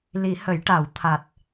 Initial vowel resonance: oral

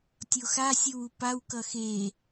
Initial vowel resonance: oral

